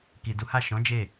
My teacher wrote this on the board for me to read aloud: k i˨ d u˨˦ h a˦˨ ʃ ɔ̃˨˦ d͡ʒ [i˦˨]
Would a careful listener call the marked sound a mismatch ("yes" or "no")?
yes